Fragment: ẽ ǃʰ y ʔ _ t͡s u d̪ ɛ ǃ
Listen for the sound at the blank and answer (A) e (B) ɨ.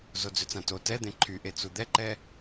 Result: A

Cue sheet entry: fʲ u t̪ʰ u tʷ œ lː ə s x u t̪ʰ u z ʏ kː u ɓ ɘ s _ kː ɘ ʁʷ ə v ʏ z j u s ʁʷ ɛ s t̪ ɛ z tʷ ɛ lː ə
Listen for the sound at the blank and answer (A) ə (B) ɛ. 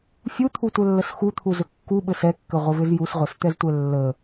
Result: B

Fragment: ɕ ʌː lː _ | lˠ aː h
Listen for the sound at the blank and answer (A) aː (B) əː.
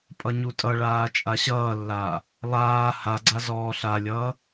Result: A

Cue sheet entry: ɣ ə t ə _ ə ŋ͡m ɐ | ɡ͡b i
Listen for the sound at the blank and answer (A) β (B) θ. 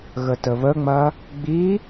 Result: A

